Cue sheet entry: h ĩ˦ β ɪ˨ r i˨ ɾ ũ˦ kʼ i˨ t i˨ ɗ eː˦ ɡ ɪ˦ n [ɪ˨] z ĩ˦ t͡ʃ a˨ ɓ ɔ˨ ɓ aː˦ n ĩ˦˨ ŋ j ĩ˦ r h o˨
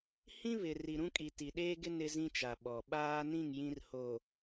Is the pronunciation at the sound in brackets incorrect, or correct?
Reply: incorrect